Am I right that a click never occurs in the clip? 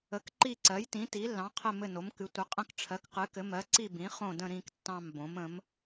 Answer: no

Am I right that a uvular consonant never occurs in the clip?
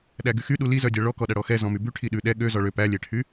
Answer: yes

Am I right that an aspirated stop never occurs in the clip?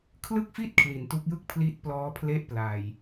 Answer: no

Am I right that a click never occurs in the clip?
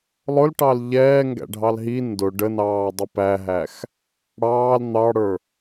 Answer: yes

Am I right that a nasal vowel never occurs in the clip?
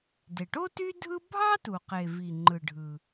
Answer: yes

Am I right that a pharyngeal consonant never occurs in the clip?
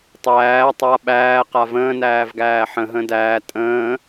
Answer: no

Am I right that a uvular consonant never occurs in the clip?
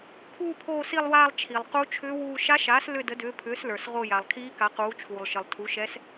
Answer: no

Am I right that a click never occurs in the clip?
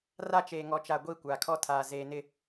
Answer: yes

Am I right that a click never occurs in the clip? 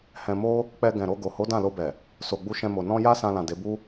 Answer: yes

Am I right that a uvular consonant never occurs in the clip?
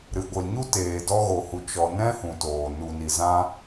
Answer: yes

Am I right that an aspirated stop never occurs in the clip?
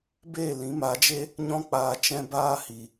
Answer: yes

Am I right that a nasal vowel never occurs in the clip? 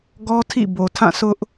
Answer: no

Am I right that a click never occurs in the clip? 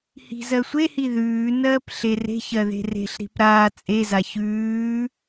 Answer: yes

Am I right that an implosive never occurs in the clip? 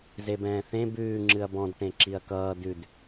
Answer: yes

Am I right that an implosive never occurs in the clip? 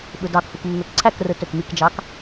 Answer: no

